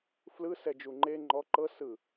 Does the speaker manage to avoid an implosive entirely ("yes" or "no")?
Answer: yes